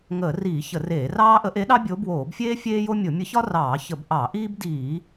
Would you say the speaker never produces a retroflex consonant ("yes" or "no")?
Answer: yes